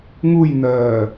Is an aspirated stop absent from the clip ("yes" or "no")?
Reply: yes